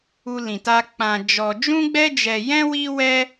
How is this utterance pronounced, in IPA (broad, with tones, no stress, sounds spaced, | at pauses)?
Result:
u˦ l ĩ˧ t a˦ k͡p ã˧ d͡ʒ ɔ˧ d͡ʒ ũ˦ ɡ͡b ɛ˦ d͡ʒ ɛ˧ j ɛ̃˦ w i˦ w ɛ˦